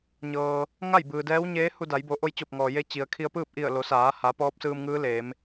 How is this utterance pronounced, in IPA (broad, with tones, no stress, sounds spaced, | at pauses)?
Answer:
ɲ ɤː˩ | ŋ a˥˨ j b ɯː˩ d ɛː˧˥ w ɲ eː˧˥ h u˧ d a˩˧ j b o˩˧ ʔ o˧ j t͡ɕ o˧˩ p̚ ŋ ɔː˩ j e˧ t͡ɕ i˩ ə̯ kʰ i˧ ə̯ p ɯː˥˨ p̚ ʔ i˧˩ ə̯ l o˩˧ s aː˩˧ h a˩˧ p ɔː˧˥ p̚ s ɯː˧ m ŋ ɯː˧˥ l eː˩˧ m